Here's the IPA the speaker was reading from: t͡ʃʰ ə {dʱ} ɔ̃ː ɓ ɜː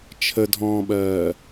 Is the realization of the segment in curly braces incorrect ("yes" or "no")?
no